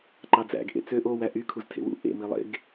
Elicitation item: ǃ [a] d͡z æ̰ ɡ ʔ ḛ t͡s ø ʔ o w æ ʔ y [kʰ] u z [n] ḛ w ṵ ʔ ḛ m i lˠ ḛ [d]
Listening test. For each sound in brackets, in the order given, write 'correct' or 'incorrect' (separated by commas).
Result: incorrect, correct, incorrect, incorrect